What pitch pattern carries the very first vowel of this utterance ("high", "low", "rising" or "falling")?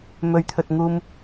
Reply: low